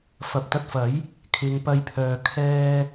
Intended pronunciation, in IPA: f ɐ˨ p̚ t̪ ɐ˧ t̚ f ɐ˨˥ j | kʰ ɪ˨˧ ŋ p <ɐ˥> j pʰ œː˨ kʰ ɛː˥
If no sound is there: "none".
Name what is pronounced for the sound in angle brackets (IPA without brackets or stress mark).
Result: ɐ˧